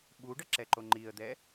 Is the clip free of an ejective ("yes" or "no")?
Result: yes